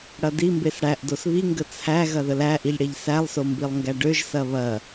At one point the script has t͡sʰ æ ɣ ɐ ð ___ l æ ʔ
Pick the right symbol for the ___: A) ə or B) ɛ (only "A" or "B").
A